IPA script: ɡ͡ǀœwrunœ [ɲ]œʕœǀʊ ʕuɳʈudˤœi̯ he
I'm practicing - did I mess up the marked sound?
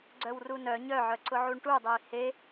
no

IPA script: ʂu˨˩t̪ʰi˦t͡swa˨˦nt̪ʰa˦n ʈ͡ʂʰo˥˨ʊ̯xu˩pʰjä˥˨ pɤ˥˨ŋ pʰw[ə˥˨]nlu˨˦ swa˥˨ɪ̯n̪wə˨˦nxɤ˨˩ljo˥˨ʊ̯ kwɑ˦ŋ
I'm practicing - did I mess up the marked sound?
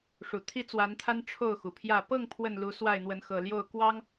no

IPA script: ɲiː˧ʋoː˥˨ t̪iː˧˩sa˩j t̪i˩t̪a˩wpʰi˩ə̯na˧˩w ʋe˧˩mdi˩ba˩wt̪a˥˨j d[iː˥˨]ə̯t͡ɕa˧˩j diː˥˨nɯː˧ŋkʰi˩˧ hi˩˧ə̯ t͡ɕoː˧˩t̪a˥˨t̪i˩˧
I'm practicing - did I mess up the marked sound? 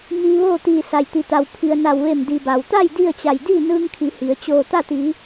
yes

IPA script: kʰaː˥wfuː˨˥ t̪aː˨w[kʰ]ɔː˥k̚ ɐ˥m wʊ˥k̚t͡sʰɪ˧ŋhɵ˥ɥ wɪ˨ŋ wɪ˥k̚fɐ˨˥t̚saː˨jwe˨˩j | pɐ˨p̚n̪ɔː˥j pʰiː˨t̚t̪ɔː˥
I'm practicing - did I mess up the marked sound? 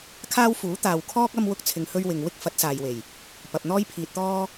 no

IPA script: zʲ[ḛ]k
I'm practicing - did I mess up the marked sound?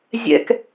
yes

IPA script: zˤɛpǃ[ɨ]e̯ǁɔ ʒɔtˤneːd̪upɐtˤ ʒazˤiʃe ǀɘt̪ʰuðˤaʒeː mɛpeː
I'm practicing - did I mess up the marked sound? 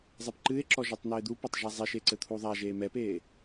no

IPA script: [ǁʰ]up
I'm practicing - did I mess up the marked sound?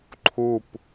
yes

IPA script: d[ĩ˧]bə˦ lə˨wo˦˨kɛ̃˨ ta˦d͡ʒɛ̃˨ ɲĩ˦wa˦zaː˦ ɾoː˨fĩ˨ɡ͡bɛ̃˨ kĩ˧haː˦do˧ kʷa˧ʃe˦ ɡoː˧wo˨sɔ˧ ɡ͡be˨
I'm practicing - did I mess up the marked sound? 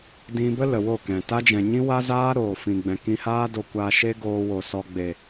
no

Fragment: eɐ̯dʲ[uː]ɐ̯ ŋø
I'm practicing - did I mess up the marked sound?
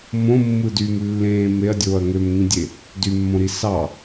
yes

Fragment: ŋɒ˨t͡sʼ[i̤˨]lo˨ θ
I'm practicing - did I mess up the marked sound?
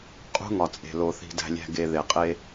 yes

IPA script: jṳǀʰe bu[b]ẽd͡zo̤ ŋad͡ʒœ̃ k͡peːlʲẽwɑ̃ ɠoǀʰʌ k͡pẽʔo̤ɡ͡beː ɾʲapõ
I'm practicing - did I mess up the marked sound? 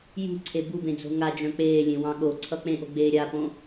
no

